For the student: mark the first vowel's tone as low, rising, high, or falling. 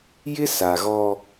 high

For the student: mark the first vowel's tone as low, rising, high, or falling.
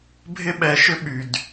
high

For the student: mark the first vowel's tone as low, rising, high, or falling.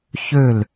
falling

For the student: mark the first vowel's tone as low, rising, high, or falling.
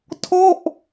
falling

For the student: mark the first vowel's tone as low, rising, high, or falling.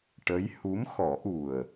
rising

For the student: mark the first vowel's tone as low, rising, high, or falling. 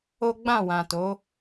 high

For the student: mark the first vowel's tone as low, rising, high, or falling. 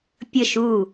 falling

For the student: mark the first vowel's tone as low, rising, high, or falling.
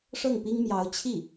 falling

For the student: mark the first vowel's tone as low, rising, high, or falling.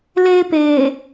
high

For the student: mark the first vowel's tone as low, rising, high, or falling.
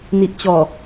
low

